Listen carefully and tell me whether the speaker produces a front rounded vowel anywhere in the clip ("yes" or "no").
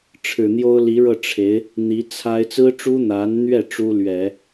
no